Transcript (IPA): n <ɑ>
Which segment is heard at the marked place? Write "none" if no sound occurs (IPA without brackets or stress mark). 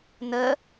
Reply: ə